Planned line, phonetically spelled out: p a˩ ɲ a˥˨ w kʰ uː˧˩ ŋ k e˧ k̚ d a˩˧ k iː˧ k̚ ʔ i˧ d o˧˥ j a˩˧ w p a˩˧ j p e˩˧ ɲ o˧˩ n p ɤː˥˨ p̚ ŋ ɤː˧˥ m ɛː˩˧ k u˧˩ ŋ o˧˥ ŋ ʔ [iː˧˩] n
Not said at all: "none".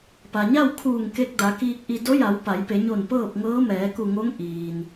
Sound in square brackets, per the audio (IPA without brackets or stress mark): iː˩